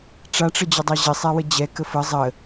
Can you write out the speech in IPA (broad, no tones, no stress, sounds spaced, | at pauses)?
ʈ͡ʂ a ʈ͡ʂ ə d͡ʑ ə dˤ ɑ ʑ ɪ sˤ ɛ w ə d͡ʑ ɛ k ə f ə zˤ ə